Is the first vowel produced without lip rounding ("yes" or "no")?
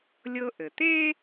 yes